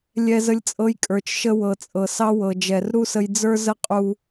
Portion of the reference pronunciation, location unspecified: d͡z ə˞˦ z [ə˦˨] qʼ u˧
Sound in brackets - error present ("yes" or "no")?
yes